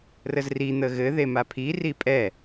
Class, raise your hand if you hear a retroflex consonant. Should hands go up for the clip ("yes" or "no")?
no